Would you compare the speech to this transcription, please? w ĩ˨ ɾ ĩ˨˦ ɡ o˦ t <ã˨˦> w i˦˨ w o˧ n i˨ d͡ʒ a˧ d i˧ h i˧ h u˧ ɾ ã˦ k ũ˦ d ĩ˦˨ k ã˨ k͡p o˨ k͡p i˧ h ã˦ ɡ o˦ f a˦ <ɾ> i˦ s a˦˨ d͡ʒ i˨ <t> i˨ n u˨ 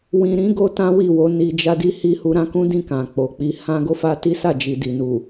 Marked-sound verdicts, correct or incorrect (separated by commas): incorrect, incorrect, incorrect